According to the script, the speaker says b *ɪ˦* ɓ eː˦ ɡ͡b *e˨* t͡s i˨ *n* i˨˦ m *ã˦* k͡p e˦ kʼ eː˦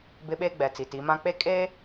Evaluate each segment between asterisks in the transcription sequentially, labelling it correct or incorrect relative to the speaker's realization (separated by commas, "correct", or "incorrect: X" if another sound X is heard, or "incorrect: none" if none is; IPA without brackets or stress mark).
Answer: correct, incorrect: ɛ˨, incorrect: t, correct